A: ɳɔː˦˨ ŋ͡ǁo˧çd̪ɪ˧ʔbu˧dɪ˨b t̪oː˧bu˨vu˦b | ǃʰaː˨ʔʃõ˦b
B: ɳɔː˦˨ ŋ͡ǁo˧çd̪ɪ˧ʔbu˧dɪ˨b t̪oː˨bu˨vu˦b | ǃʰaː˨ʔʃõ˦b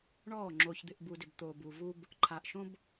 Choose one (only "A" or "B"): B